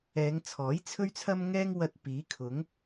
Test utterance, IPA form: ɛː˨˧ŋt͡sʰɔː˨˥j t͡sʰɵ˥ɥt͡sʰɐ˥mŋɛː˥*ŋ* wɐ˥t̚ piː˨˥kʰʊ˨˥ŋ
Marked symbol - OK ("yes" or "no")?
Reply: yes